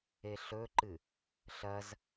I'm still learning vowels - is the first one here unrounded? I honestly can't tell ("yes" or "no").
yes